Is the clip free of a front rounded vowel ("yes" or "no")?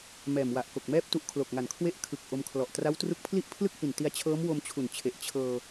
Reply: yes